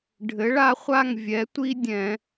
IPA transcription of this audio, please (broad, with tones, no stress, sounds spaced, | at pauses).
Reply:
ɖʱ ɘ˩˧ ɭ a˦ χʷ a˦˨ ŋ vʲ ɛ˩˧ tʷ i˦ dʲ ɛ̃˧˩˧